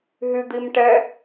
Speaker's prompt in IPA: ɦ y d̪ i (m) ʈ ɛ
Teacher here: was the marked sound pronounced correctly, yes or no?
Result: yes